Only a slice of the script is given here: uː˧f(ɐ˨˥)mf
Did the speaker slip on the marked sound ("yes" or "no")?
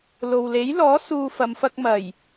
yes